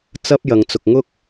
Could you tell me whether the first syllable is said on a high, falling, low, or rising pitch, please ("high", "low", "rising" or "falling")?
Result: high